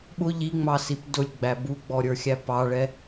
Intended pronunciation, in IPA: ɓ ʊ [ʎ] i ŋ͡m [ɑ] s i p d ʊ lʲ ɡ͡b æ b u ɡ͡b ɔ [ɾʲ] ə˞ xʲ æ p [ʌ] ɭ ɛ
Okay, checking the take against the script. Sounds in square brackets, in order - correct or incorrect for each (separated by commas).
correct, correct, correct, incorrect